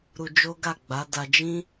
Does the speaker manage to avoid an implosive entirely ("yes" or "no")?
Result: yes